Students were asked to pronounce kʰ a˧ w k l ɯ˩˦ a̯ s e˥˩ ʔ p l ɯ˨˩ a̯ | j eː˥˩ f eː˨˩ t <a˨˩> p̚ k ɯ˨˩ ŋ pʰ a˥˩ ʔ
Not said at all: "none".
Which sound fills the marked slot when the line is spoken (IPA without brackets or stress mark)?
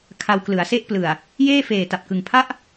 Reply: a˨˩